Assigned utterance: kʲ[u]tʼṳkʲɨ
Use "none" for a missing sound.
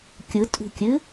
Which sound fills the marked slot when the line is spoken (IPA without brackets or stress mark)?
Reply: ɯ